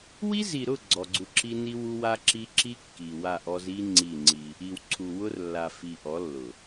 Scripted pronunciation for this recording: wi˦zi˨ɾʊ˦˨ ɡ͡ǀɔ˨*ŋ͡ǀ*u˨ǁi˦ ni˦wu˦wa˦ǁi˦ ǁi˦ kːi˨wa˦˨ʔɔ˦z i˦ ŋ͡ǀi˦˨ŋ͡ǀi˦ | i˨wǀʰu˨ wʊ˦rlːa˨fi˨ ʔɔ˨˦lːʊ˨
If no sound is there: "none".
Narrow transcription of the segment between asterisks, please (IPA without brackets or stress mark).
ɡ͡ǀ